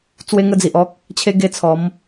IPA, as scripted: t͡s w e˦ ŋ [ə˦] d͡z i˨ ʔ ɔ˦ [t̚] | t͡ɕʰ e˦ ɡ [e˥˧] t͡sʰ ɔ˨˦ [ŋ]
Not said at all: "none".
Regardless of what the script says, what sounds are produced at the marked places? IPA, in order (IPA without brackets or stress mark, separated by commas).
ə˦, k̚, e˥˧, m